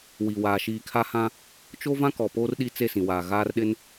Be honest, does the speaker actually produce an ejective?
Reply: no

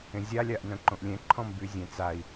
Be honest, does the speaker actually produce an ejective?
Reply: no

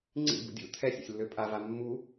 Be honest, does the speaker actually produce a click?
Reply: yes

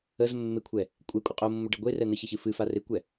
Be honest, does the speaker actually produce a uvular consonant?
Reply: yes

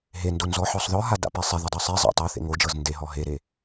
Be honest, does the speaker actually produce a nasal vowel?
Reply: no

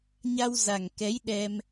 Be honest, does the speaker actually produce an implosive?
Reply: yes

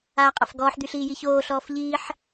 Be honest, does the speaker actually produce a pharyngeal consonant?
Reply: yes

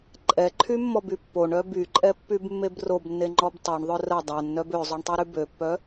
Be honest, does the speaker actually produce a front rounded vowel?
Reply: yes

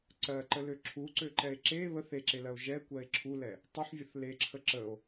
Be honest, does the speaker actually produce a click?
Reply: yes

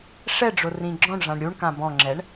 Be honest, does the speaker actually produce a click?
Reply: yes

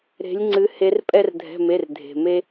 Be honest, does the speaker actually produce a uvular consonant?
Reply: no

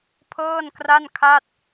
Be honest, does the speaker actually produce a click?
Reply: no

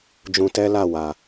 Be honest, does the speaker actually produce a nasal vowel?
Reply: yes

